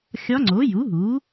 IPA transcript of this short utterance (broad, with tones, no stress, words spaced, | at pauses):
xʲɒ˧˥ŋ͡ǀo˩˥ ju˩˥ɦu˩˥